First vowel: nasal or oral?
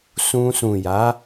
nasal